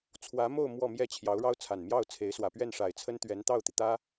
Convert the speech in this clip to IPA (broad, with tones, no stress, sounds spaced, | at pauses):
t͡sʰ w ä˧˥ m o˥˧ ʊ̯ m w ɔ˥˧ m j ɛ˥˩ t͡ɕʰ j ɑ˧˥ ʊ̯ ɻ ɑ˥ ʊ̯ t͡sʰ a˨˩ n m j ɑ˥˩ ʊ̯ t͡sʰ e˧˥ ɪ̯ s w ä˨˩ p ɥ ɛ˥˩ n ʂ a˨˩ ɪ̯ t͡sʰ ə˥ n t̪ ɥ ɛ˧˥ n t̪ ɑ˥˩ ʊ̯ t̪ i˩ t̪ ä˥